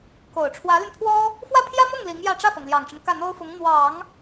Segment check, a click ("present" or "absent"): absent